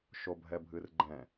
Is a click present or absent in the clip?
present